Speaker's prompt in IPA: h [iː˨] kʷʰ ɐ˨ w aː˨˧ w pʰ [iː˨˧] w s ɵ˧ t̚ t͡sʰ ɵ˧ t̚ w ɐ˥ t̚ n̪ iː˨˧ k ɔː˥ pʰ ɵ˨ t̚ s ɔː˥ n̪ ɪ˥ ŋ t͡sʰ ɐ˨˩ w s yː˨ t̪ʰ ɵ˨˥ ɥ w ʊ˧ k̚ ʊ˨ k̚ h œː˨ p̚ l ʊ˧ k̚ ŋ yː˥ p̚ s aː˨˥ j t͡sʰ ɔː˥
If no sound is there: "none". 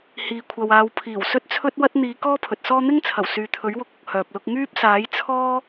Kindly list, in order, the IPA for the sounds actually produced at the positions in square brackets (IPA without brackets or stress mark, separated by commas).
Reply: iː˨, iː˨˩